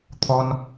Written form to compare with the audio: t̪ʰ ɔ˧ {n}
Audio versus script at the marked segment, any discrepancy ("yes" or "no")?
no